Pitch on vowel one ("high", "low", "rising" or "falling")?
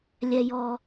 high